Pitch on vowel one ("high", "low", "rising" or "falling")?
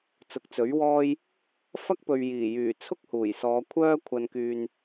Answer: rising